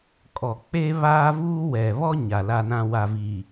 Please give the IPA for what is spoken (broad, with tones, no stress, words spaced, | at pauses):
kʼɔ˨ k͡pe˦ βaː˦vuː˦ wɛ˨ βɔ˦ ɲa˨la˦nã˦ wa˨viː˨